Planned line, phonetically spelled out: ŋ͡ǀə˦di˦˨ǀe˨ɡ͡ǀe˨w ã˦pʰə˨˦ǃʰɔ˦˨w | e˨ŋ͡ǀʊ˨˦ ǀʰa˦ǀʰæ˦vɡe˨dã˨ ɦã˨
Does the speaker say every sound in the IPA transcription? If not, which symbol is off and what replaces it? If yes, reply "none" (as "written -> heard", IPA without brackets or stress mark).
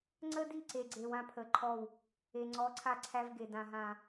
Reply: ʊ˨˦ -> ɔ˨˦